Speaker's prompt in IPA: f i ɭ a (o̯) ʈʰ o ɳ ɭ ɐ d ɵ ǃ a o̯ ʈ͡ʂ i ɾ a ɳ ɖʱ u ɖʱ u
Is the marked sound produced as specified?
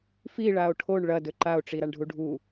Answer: yes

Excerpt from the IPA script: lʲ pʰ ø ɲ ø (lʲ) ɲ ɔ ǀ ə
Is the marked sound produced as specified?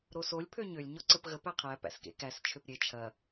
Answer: yes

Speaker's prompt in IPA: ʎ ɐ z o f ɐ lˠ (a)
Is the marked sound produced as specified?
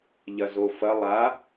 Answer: yes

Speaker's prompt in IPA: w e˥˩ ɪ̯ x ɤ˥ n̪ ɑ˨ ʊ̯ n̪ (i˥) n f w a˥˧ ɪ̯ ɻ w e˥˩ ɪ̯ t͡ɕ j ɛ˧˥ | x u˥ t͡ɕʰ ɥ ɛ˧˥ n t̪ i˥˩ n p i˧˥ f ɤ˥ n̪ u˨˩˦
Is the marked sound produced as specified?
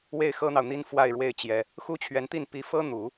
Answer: yes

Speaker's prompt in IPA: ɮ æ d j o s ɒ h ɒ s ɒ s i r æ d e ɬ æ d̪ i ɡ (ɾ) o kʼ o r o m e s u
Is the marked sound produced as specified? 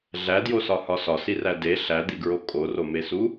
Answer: no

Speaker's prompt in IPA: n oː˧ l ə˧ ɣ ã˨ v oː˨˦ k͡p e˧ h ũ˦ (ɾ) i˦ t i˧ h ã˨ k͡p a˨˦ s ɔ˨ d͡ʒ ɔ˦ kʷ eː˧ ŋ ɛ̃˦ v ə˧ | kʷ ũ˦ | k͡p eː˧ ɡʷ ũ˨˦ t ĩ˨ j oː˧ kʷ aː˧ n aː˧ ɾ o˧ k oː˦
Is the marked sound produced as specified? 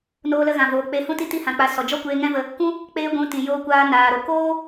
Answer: no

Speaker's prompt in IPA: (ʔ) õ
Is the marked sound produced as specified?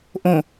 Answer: yes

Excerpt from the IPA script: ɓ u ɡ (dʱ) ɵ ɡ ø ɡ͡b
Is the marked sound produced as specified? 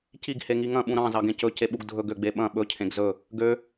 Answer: yes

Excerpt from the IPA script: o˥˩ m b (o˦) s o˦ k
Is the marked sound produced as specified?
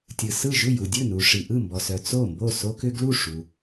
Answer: no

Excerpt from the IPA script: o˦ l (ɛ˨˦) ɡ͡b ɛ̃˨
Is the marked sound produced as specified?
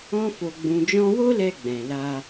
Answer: no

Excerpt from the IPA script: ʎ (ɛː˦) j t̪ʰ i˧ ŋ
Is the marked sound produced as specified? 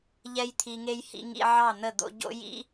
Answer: no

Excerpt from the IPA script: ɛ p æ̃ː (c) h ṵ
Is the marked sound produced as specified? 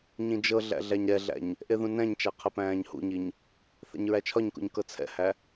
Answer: no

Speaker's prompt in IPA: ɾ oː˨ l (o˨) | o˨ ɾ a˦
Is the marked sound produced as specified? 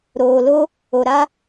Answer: no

